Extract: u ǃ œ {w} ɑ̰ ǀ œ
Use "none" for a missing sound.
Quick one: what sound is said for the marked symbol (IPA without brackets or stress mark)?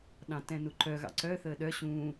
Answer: ɣ